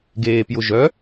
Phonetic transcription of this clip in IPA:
ɡ eː p j ʊ ʒ œ

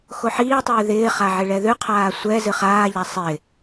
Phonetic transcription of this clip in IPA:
x o ħ iː tˤ ʉː ð ɪː χ a ʕ ɪ ɭ ɛ ð ʉ qʰ aː sʷ ɛ z ɨ χ aː ʎ a sˤ ɪ

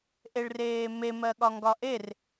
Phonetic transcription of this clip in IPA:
ʔ e ɭ r eː m e m ɜ ɠ ɒ ŋ ɡ ɒ ʔ e r

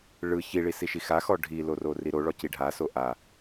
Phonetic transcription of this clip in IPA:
ɭ ɯ ç i ɭ i s i ʃ i x a x ɔ ɖʱ i l o r o r i ɾ o ɭ ɔ c i ɖʱ a s o ʔ a

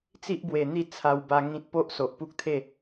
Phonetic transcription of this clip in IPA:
t͡s i˦ ʔ b w e˨˩ n̪ i˥˧ t͡sʰ a˧ w b a˧ ŋ ĩ˦ t̚ p o˦ ʔ s o˨ ʔ p u˦ k̚ t̪ʰ e˥˧

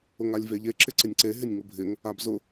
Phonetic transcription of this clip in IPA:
ʊ ŋ a lʲ v e ʎ e ǁ ɪ ǀ ɪ nʲ ǀ e ɦ ɪ nʲ ŋ ʊ bʱ ɪ ŋ | a b z ʊ

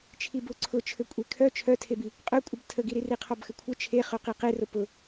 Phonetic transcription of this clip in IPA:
t͡ʃʰ i b ʊ ǀʰ ʊ t͡ʃʰ ɘ kʷʼ e kʰ œ t͡ʃʰ œ tʰ e b i | qʼ œ kʷʼ ə b tʰ ə ɡ i ɾ i r i qʰ ɔ b x ɘ kʷʰ ɘ t͡ʃʰ e χ œ q i q e r ʊ p ʊ

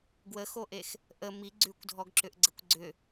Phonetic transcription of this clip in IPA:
ɡ w ə x o ʔ e x | ʔ ə m i ɡ͡ǀ ʉ kʷ dʱ ɔ ɡ ǁ ʏ ʔ ɡ͡ǀ ə kʷ ɡ͡ǀ ʏ

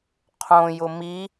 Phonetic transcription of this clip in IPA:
qʰ õ j ʊ m i

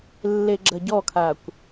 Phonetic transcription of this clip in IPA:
lː e ɡ͡ǁ ɐ ɟ ɔ kʰ a kʷ

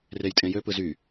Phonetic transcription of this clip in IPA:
r e j tʼ ẽ j ø p ɯ z y

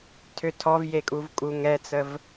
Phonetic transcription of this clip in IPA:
tʰ ø tʰ ɔ v j e kʼ u v kʼ u ŋ ɛ t͡s ə v

